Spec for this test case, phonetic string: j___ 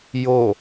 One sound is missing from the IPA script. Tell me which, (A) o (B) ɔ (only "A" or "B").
A